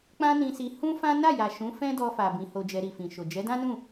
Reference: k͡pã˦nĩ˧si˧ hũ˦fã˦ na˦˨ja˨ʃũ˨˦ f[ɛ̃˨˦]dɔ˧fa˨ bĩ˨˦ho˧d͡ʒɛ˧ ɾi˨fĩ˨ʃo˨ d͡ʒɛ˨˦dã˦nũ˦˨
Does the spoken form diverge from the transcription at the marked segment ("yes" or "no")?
yes